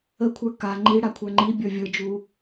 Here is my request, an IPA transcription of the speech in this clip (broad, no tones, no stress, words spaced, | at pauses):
əkʷʰə˞ ka ŋ͡ǃi ɽakʷʰə˞ŋ͡ǃibʲə˞ vʲə˞d͡ʒu